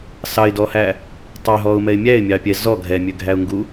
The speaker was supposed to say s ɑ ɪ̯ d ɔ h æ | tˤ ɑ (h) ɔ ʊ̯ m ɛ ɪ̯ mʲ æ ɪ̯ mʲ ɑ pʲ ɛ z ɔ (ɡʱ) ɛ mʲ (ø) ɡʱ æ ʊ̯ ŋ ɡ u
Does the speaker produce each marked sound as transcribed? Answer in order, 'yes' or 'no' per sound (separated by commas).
no, yes, yes